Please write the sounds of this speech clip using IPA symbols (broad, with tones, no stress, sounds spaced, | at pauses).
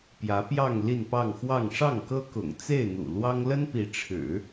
p j ä˧˥ p j ɑ˥˧ ŋ l i˥˧ n p ɑ˥˧ ŋ x w ɑ˥˧ ŋ ʂ ɑ˥˩ ŋ k ɤ˥ k ʊ̰˨˩ ŋ t͡s e˥˩ ɪ̯ n̪ ṵ˨˩ l w ɑ˥ ŋ l ə˥ n p i˧˥ ʈ͡ʂʰ ɻ̩˨˩˦